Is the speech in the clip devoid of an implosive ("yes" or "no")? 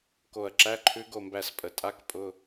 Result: yes